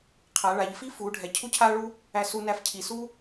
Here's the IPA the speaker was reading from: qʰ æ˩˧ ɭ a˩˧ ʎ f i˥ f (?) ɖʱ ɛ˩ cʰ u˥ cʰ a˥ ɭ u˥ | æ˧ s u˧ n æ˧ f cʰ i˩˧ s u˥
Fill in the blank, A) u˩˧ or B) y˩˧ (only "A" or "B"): A